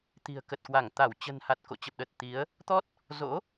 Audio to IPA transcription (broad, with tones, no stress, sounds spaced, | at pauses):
t̪ i̤˨˩ ə̯ k ə˨˩ t̚ k w a˧˩ ŋ t̪ a˧˩ w t͡ɕ ə̤˨˩ n h a˨˩ t̚ k o̰˧˨ t͡ɕ ə˨˩ p̚ ɗ ə˨˩ t̚ t̪ i˨˦ ə̯ | t̪ ɔ˦˥ t̚ | z o̰˧˥